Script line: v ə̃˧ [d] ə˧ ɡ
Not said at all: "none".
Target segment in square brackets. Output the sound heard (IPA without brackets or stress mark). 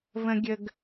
ɡʲ